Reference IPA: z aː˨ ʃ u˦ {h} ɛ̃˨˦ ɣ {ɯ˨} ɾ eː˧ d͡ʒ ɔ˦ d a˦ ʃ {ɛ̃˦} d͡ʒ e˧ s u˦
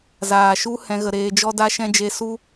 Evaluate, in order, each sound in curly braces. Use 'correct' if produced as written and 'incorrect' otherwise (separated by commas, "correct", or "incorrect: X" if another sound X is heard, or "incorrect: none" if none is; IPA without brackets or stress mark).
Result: correct, incorrect: ə˨, correct